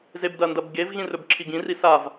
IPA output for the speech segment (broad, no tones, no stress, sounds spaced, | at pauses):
z e b d ɐ n d ɐ b ɡ e v ɣ ĩ r ɵ b ǁʰ i ɡ ĩ r i s a v